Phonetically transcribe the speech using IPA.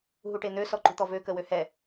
ɦ u ʈ e n̪ ø s ɔ ǃ ṳ t̪ ɔ v ø k ə w ø h ɛ

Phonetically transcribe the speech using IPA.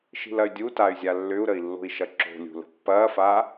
ʃ i̤ l ɐ y̯ dʲ u t a y̯ zʲ a lː ʏ u̯ ɾ ə i̯ lː o̤ i̯ ʃ ɐ ǁ o̤ lʲ ṳ l ə̤ pː ɐː f a

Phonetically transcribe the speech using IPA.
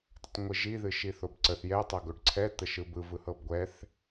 d ə tˤ ŋʷ ɨ ʒ i ð ɨ ʃ i θ o b ǀ ə θ j ɛ tˤ ɤ ɡ o ɖ ǀʰ ɛ t̪ ə ʃ ɯ b ɯ v ɯ h ɤ b ɡʷ ɛ θ

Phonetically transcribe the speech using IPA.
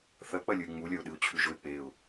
θ ɐ k͡p ɐ lʲ ɵ ɪ̯ ŋ͡m u lʲ ɐ ʊ̯ ɗ ɨ ʊ̯ t͡ɕʰ ʉ ʒ ɵ ɪ̯ k͡p e ʊ̯

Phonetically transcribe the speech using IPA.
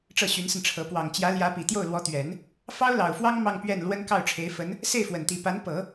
ʈ͡ʂ ɤ˥˩ ɕ y˧˥ n s ə˧ n ʈ͡ʂʰ ɤ˧˥ p w ɑ˨˩ ŋ t͡ɕ j ä˧˥ l j ä˧˥ p i˨˩ t̪ j o˥˩ ʊ̯ l w ɔ˧˥ t̪ ɥ ɛ˨˩˦ n | f ɑ˥ ʊ̯ l ɑ˨˩ ʊ̯ f w ɑ˥ ŋ m ɑ˥˧ ŋ p ɥ ɛ˥˩ n l w ə˥ n k ɑ˥˩ ʊ̯ ʈ͡ʂʰ e˧˥ ɪ̯ f ə˧˥ n | s e˥˩ ɪ̯ f w ə˨˩ n t̪ i˧˥ p a˧˥ n p ɤ˨˩˦

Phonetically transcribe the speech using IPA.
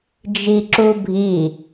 d͡ʒ i ǁ u bʱ i

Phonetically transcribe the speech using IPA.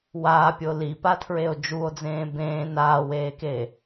w aː pʲ o l i p a tʰ ɹ e o̯ d͡ʒ u o̯ d͡z ẽː b ẽː n aː w eː k eː

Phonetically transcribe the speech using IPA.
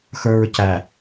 x ə˞ ɹ c æ

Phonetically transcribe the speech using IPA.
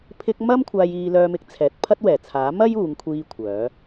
pʰ ɪ˧ k̚ m ɐ˥ m kʷʰ aː˧ j iː˧ l œː˧ m ɪ˨˥ k̚ t͡sʰ ɛː˨ t̚ pʰ ɐ˥ t̚ w ɛː˨˩ t͡sʰ aː˨˥ m ɐ˥ j uː˨˧ ŋ kʷʰ iː˧ kʷʰ œː˨˧

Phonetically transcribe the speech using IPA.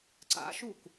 ǀ a̰ ʃ u k

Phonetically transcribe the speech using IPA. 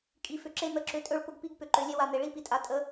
kʼ i˨ f ʏ˨ ǁ e˦ n̪ ə˨ ǁ ʏ˨˦ tʼ ɵ˦˨ ɭ p ʊ˦ ɡ p i˦ ɡ p ʏ˨ ǃ ø˨ lʲ e˦ w a˨ n̪ e˨ ɭ i˦ p i˨ tʼ a˨ tʼ ə˨˦

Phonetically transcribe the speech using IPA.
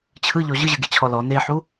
t͡ɕʰ ɯ ʎ ɔ ʑ ɯ ʑ ɯ ɡ e t͡ɕʰ ɔ l ɔ n e ħ u

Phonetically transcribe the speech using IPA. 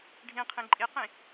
ɖʱ ĩ qʰ ĩ ǃʼ i q ĩ

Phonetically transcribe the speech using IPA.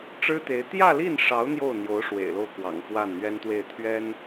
ʈ͡ʂ ɻ̩˥ t̪ e˧˥ ɪ̯ t̪ j ä˥˧ l i˥˩ n ʂ ɑ˧˥ ʊ̯ n̪ j o˥˩ ʊ̯ n̪ j o˧˥ ʊ̯ ʂ w ḛ˨˩ ɪ̯ l o˥˩ ʊ̯ k w ɑ̰˨˩ ŋ f w a˥˩ n n̪ ɥ ɛ˥ n t̪ w e˥˩ ɪ̯ t̪ʰ ɥ ɛ˥ n

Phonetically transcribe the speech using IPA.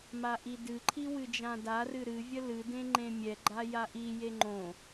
m a ʔ i d ɨ ǃʰ i w ɨ d͡ʒ ã d a r ɨ ɾ ɨ vʲ ə l ɨ d ẽ ŋ͡ǃ ẽ mʲ ɛ ɡ͡ǃ a j a ʔ i j e ŋ͡ǃ õ

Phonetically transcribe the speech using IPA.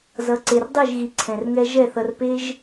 z ʌ˨˦ ǀ e˨ r dˤ i˦˨ ʒ ɣ i˨ ǀʰ ɛ̃˨ r ŋ ɛ˦ ʒ ɛ˦˨ θ ʌ˧ r p e˦ ʒ

